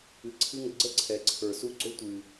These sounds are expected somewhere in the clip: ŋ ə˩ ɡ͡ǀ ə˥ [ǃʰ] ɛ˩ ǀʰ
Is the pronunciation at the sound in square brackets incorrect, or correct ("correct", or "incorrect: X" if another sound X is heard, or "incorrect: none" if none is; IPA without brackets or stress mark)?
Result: incorrect: ǀʰ